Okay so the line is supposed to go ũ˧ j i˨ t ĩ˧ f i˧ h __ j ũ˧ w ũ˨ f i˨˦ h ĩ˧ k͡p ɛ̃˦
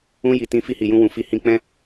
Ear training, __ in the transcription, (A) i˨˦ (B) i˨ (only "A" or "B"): B